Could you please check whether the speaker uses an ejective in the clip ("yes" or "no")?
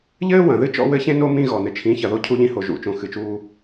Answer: no